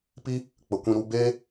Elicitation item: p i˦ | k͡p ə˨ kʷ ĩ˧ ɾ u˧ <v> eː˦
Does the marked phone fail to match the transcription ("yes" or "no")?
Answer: yes